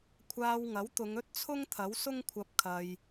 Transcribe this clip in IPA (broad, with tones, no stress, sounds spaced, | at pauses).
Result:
kʷʰ aː˧ w ŋ ɐ˨˥ w t̪ ʊ˨˧ ŋ ɵ˥ t̚ t͡sʰ ʊ˥ ŋ t̪ʰ ɐ˨˥ w s ʊ˥ ŋ kʷʰ ɐ˧ p̚ kʰ ɐ˧ j